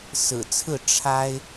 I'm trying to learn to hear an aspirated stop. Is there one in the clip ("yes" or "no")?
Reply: yes